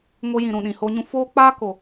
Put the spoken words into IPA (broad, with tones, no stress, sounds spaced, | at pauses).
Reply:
ŋ o˧ j ĩ˨ ɾ ũ˨ ɗ ĩ˨ h o˧ ɲ ũ˧ f oː˦ k͡p aː˦ k o˨